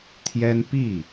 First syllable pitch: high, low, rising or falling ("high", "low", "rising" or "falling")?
high